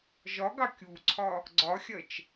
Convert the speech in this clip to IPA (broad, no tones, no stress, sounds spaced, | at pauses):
ʒ ɒ ɡ ɑ kʲ u ǀʰ ɒ | ɡ͡ǀ ɒ xʲ ɜ t͡ʃ